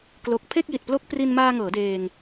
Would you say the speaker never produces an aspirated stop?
no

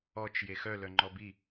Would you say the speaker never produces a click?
no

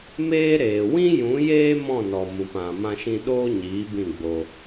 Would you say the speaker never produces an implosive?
no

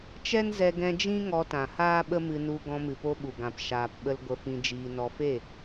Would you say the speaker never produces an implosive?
no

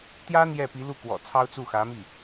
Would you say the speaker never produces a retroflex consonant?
yes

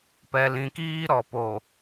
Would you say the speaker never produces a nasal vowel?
no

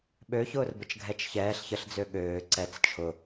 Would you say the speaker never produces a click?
no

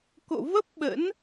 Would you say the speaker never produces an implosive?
no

